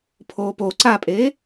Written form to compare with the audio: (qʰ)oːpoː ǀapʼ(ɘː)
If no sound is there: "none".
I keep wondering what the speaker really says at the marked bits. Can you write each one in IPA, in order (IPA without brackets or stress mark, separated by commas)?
pʰ, eː